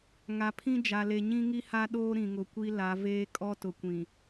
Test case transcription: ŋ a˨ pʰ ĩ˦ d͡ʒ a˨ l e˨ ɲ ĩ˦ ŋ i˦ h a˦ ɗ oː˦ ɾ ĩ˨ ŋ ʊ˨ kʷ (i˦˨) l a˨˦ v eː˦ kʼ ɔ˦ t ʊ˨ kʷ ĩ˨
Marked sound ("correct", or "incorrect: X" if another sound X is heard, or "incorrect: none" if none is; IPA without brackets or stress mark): incorrect: i˦